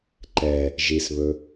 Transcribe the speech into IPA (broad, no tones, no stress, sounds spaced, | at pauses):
ǃ ɛ | ʒ i s β ɵ